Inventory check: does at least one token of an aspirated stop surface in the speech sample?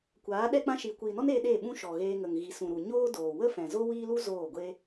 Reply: no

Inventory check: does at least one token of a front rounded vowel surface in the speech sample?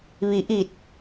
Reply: no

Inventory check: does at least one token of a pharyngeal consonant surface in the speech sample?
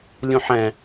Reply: yes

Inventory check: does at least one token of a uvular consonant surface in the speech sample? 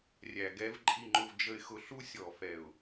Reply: no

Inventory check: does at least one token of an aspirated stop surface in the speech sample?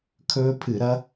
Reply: yes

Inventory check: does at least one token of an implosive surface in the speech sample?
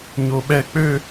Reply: yes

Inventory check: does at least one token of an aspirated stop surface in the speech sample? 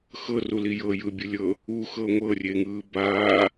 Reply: no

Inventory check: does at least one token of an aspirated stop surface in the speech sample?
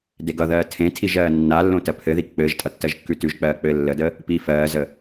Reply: yes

